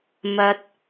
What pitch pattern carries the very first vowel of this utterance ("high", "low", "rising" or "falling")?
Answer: low